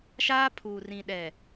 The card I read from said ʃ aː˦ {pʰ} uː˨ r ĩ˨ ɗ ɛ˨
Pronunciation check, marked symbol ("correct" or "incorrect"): correct